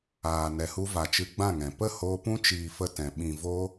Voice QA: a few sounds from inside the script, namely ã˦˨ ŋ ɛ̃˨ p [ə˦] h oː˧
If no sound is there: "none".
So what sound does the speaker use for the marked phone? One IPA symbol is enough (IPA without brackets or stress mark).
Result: ə˦˨